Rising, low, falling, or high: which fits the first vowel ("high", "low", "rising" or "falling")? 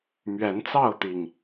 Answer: rising